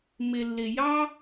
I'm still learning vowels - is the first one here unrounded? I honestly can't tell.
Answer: yes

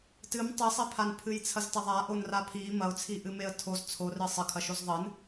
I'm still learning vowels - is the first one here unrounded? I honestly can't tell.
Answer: yes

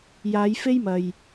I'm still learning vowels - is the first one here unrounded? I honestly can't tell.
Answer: yes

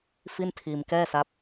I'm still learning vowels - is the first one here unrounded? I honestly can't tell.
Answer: yes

